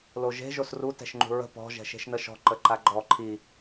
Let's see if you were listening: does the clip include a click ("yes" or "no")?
yes